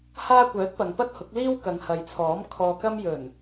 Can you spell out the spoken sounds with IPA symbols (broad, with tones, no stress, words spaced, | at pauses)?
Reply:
haː˧kʷœː˨˥t̚ pɐ˨ŋpɐ˥t̚hʊ˨˥k̚ liː˥w kɐ˨˧ŋhɐ˨jt͡sʰɔː˨˥m kʰɔː˧kɐ˥m jɵ˨˩n